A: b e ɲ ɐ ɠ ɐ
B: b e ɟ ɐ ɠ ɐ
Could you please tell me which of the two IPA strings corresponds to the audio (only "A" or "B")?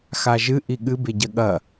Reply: B